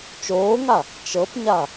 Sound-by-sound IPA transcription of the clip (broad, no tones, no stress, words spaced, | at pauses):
t͡ʃoːŋa | t͡ʃɤpɲa